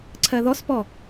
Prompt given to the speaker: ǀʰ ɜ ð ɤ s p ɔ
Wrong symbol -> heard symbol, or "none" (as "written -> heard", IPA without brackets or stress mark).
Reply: ɤ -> ɔ